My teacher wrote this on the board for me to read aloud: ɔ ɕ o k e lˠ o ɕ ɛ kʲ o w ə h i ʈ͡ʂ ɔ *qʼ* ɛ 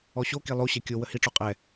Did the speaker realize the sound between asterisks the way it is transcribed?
yes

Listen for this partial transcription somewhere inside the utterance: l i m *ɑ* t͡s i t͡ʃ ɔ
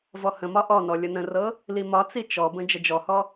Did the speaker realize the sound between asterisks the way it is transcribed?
no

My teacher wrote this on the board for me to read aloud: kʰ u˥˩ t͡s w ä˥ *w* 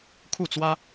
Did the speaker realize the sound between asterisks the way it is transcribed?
no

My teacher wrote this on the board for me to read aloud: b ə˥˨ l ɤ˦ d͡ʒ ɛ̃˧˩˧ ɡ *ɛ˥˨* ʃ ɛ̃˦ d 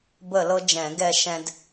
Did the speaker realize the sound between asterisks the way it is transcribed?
yes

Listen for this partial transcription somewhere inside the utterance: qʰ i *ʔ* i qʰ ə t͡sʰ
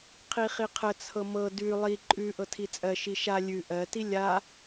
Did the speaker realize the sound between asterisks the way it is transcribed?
no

